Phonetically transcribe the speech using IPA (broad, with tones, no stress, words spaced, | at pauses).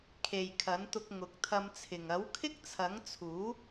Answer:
kʰe˨jkʰɐ˨˥nt̪ʊ˧k̚ ŋʊ˨˥k̚t̪ʰɐ˧mt͡sʰɪ˨ŋ ɐ˨˥wkʰɪ˥k̚t͡sʰɐ˨˥ŋt͡sʰuː˨˥